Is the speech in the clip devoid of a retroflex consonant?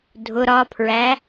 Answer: yes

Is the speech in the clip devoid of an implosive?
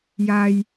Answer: yes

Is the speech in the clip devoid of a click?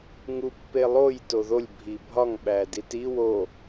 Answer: yes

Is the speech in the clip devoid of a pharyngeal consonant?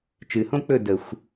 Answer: yes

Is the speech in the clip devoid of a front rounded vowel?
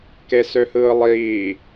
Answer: no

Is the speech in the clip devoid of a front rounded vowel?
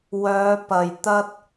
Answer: no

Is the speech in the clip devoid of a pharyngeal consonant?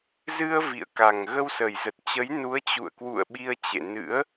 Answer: yes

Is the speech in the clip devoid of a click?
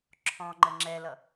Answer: no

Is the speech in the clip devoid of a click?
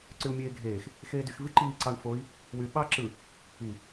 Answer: no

